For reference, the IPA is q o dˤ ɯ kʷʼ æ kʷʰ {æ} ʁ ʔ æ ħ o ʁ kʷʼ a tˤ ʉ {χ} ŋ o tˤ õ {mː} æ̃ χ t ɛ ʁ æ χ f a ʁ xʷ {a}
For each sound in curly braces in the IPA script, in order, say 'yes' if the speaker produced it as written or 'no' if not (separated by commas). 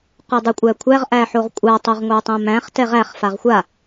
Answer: yes, no, no, yes